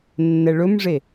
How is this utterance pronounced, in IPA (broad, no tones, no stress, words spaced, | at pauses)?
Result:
nːɛɭɵmʐe